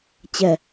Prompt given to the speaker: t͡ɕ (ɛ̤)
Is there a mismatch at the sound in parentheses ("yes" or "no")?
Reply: yes